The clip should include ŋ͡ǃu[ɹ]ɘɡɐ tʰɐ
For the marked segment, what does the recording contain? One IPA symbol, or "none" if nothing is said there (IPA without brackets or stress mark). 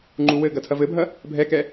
w